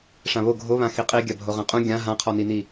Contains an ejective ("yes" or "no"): yes